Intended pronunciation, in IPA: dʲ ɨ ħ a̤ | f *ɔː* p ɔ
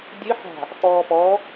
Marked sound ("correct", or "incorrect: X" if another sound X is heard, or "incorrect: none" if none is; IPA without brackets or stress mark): correct